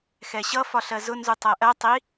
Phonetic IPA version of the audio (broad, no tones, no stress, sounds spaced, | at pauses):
x ɛ ɕ ʌ f ɒ ɬ ɜ z ʊ n z u tˤ æ ʔ ɜ tˤ i